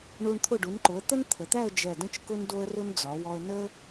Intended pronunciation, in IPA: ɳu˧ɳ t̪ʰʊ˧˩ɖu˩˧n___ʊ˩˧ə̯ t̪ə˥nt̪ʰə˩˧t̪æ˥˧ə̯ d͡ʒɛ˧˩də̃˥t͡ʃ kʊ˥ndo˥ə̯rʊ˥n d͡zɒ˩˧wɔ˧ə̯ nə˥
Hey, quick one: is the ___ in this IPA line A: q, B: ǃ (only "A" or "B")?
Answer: B